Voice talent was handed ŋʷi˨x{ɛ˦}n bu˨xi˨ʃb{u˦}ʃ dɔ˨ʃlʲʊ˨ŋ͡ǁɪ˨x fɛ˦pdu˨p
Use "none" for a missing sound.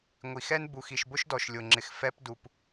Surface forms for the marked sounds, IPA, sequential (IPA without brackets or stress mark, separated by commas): ɛ˦, ʊ˦